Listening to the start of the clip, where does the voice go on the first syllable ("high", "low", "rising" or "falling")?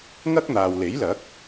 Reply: high